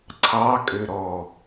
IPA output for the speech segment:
ǀʰ ɑ kʼ ø ɾ ɔ

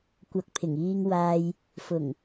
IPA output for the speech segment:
kʷ ɐ˨ k̚ pʰ ɪ˨˩ ŋ iː˧ ŋ w aː˧ j | f ʊ˨˩ ŋ

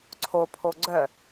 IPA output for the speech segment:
ǀʰ o pʰ o ɡ͡ǀ œ

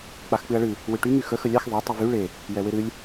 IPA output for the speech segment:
k͡p a x k͡p ɨ ɐ̯ ɭ ɨ | w ɨ ʈ y ŋ y x ə x ə lʲ a x ðˤ ɛ tˤ y v y ɭ e | j ɛ w e ɾ ɨ lʲ

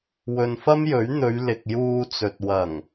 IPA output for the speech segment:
w ɵ˨ n f ɐ˥ m j ɵ˨˥ ɥ n̪ ɵ˨˧ ɥ l ɪ˨ k̚ j uː˧ t͡s ɵ˨ t̚ w ɐ˨˩ ŋ

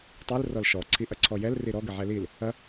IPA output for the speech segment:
tˤ i l r ɔ l ʃ ɔ ǀʰ i ʔ ɐ ǀʰ ɔ j ɛ l r i ɾ ɔ ɡ ə ʕ ɛ l i l | ɐ

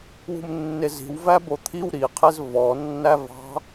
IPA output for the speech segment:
w ṳ m nː e z i̤ w v æ b o t̪ʰ i w ɾ i qʰ e z v ɔ nː æ v ɑ̤

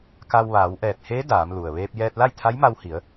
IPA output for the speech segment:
k a˧ w ʋ aː˩˧ w ʔ ɛː˧˩ t̚ h e˧˥ d aː˩˧ m l u˩ ə̯ ʋ eː˧ p̚ j ɛː˧ t̚ l a˥˨ j t̪ʰ a˧˥ j m a˧ w h i˩˧ ə̯

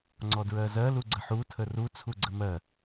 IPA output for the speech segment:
ŋ͡ǀ ɔ d ɹ ɜ z ɜ l u ɡ͡ǀ ə ħ u tʰ ə r u t͡sʰ u ɡ͡ǀ ə m ɜ

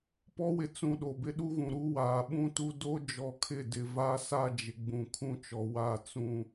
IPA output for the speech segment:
p ɔ˦ w ɪ˨ t͡s ũ˨ ɗ o˨ b ɪ˦ ɗ u˦ ɣ ũ˨ ɾ u˦ w aː˨ ɓ ũ˦ t u˦ d o˦ d͡ʒ ɔ˨ kʰ ɪ˦˨ d ɪ˨ v a˦ s a˦ d͡ʒ ɪ˨ ɡ͡b ũ˨ kʰ ũ˦ t͡ʃ ɔ˨ w a˦˨ t͡s ũ˦

